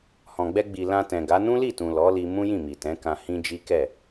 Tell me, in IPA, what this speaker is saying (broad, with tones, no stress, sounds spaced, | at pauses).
h ɔ̃˨ ɡ͡b ɛ˧ ɡ͡b i˨ l ã˧ t ɛ̃˨ ɡ a˨˦ n ũ˦ l i˦˨ t ũ˨ l ɔ˨˦ l i˧ m ũ˦ j ĩ˦˨ m i˨ t ɛ̃˨˦ k ã˧ h ĩ˧ d͡ʒ i˦ k ɛ˦˨